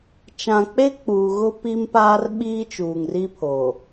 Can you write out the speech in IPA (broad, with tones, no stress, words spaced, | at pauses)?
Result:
t͡ʃã˨k͡pe˦ k͡puː˨ɣʊ˦ pi˦mpaː˦r ɓiː˦t͡ʃuː˨ŋri˦pʰo˨